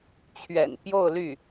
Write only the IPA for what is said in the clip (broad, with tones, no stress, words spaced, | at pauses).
t͡ɕʰɥɛ̰˨˩npjo˥˧ʊ̯ly˥˩